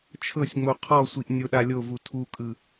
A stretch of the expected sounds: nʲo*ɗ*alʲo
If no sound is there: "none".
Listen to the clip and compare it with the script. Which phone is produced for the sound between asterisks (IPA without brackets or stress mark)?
ɗ